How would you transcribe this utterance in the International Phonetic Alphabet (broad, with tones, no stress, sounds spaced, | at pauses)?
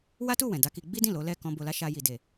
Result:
w a˦ t u˦˨ w ɛ̃˨ d a˧ k i˧ ɡ͡b i˦ d ĩ˦˨ l o˨˦ l ɛ˦˨ k ɔ̃˧ b o˧ l a˦ ʃ a˦ j i˧ d e˨